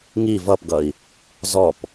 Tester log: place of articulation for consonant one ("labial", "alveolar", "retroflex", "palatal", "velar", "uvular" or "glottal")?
velar